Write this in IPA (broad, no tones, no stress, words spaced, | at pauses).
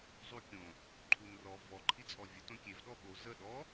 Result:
zˤukʲõ | ǃʰunrɔ vɔ ǃʰit͡sʼɔvʲə tõkʲev ɗɔɓo zə ɗɔ